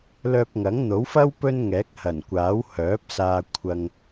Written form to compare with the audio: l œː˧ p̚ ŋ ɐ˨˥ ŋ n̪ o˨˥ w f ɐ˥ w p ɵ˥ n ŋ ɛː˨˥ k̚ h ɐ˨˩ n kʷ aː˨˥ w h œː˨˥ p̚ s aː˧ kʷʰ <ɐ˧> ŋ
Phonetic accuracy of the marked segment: correct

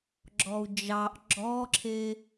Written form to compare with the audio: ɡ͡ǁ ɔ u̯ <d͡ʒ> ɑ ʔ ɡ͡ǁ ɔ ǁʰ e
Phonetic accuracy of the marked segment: correct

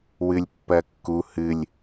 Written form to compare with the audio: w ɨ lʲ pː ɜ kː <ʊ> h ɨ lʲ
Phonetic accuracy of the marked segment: incorrect: u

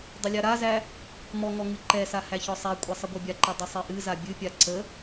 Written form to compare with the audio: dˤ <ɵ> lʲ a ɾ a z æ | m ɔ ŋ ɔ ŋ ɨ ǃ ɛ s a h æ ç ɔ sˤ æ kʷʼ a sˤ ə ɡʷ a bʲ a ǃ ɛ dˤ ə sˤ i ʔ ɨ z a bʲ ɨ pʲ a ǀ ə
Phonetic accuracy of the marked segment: incorrect: ə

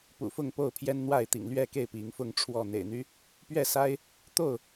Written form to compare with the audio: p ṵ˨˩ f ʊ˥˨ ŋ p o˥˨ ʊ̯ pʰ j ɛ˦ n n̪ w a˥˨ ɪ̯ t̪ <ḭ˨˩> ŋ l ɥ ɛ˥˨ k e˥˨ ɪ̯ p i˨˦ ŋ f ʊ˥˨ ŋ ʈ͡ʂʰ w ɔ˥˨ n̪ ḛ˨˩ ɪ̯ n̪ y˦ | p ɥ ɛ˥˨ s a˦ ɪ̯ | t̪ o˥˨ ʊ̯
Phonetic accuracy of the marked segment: correct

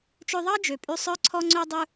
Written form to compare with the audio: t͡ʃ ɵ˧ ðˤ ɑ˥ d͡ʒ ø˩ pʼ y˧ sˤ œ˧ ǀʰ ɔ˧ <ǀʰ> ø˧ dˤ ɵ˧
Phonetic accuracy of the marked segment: incorrect: ŋ͡ǀ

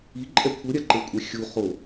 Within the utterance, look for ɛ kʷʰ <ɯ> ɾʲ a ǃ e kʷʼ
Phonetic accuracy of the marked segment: correct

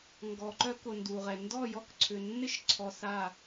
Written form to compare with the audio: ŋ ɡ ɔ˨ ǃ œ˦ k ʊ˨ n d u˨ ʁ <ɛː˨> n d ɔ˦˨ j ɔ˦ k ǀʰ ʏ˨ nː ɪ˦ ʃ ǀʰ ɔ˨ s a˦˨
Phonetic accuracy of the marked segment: incorrect: ɛ˨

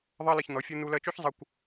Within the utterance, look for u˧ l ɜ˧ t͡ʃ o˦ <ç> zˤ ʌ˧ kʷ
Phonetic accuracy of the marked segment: correct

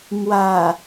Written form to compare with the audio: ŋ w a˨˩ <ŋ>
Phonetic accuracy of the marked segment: incorrect: none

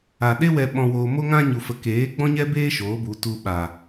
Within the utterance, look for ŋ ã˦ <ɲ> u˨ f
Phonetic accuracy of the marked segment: correct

